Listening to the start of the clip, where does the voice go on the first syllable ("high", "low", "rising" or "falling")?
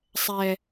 low